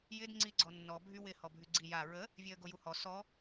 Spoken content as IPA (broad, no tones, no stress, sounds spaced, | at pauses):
j ɪ d ŋ͡ǀ i ɡ͡ǀ ɔ nː ɔ bʱ y w ɪ h ɔ bʱ y ɡ͡ǀ i j a ɹ ə | vʲ e ə̯ ɡ o j u h ɔ s ɔ